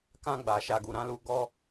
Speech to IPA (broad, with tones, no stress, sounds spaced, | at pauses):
k ã˧ ɡ͡b a˨ ʃ a˨ ɡ u˨ ɾ ã˨˦ l u˧ ɡ ɔ˧